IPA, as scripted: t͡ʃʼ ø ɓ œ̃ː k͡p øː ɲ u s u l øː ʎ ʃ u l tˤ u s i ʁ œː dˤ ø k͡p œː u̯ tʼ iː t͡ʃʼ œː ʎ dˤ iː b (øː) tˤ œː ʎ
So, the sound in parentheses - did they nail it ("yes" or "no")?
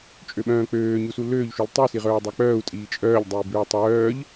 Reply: yes